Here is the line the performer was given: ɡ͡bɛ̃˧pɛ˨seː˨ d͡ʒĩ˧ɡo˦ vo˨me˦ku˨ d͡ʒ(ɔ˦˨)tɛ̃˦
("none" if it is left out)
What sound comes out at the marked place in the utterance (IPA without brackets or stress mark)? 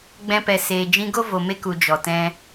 ɔ˨